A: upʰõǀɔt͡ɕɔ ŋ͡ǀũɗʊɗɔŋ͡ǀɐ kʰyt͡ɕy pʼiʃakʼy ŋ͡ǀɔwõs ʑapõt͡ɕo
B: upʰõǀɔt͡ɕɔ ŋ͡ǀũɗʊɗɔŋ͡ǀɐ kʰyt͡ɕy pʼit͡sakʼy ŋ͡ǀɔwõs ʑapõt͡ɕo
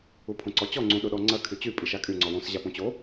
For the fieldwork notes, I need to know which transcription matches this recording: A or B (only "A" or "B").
A